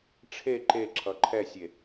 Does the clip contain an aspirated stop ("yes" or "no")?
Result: yes